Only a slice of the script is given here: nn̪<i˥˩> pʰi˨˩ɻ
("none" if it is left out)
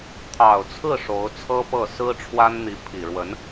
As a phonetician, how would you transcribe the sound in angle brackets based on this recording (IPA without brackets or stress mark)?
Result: i˧˥